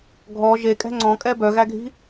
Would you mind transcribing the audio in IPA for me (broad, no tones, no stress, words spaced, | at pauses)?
ɡʱɔ ʒekʼɛ̤ ŋ͡ǀɔ̃kʼɛ bœɣæɡʱi̤